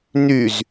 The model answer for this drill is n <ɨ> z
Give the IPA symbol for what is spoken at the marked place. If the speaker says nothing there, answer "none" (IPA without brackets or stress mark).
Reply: y